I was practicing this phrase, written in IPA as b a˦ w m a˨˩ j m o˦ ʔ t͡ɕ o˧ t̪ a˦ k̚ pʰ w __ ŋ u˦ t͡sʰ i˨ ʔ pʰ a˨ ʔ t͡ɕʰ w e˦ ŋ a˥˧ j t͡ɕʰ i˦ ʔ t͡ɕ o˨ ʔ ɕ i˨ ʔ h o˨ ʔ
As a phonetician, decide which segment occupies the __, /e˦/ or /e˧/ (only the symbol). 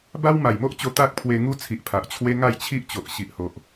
e˧